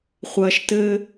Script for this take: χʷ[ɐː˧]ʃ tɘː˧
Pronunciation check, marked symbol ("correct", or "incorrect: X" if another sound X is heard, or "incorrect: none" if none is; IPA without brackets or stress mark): correct